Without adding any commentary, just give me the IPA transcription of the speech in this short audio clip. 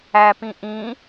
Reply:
æ p ĩ ʔ ĩ

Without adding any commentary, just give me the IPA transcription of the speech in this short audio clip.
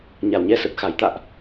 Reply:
ɲ a˨˩ w ɲ ɛ˧ s ə˨˩ t̚ x a˨˩ j t̪ a̰ː˧˨ ʔ

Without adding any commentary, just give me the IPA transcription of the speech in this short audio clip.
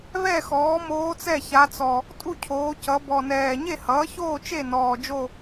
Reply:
β ɛ˥˨ x ɔː˩˥ m oː˧˥ t͡s ɛ˥˨ ç a˧˥ t͡s ɔ˨˩ | tʼ u˥˨ cʰ oː˩˧ c ʌ˩˧ b ɔ˨˩ n ɛː˨˩ ɲ e˥˨ h ʌː˩˥ ç oː˥˨ t͡ʃ e˥˨ n ɔː˨˩ d͡ʒ o˥˨

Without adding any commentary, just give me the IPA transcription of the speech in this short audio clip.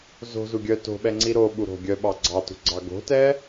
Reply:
z o̤ z u ɡʲ œ t o̤ ɓ ɛ ŋ͡ǀ i ɾ o ɓ u ɾ o̤ ɡʲ œ ɓ ɑ ɡ͡ǀ ɑ t ṳ ɡ͡ǀ ɑ ɡ o̤ t ɛ

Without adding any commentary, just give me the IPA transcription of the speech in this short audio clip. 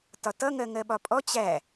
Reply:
t ɒ t ʌ ŋ ɜ ŋ ɜ ɓ ɒ pʼ ɔ t͡ɕ æ

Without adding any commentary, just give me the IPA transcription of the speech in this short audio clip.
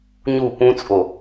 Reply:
ɲ u p ũ t͡sʼ o

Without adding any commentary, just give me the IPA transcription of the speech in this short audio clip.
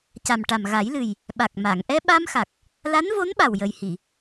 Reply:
c a˨˩ m ʈ a˨˩ m ɣ a˨˩˦ j l ɨ˨˩ j | ɓ a˨˩ k̚ m a˨˩˨ ŋ ʔ ɛ˧ ɓ a˧ m x a˨˩ k̚ | l a˧˥ n v o˧˥ n ɓ a˨˩ w j ə˨˩ j h i˨˩˨

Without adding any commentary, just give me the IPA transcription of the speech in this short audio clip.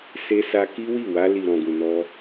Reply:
s e˧ s a˧ k i˦ w i˦˨ w a˧ l i˨ ɾ ɔ̃˨ ɡ ũ˨ n ɔ˧

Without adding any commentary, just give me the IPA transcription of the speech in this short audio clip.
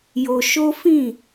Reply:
j o˧ ʃ o˦ f ĩ˦˨

